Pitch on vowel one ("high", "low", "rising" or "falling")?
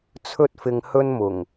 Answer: high